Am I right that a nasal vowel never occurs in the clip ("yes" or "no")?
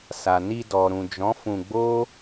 no